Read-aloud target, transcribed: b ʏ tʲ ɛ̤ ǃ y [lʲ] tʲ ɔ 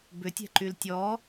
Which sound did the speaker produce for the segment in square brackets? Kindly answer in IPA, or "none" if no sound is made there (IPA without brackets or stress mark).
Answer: l